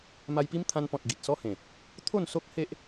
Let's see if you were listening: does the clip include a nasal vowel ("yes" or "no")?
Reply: yes